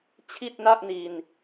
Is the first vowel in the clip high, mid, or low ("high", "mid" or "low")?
high